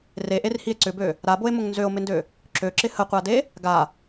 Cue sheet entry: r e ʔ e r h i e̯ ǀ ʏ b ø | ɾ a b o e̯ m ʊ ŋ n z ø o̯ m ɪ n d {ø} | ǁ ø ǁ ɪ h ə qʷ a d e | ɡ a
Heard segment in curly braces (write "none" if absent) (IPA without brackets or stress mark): ø